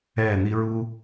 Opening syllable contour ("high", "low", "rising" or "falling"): falling